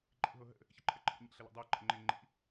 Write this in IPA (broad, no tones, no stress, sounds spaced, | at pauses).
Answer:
ǃʼ ḭ ɦ o ɦ ə̰ | ç ɪ ǃʰ ə ǃʰ ə̰ ɲ ḭ ɬ ə l a̰ dˤ a ǃ ə̰ ŋ͡ǃ ɪ ŋ͡ǃ ḭ